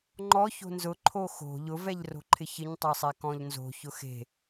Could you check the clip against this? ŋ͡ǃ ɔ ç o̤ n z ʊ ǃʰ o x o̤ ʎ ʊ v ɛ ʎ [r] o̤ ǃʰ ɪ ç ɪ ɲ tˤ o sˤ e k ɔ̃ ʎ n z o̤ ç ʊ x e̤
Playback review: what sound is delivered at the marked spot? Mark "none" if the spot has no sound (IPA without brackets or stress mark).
r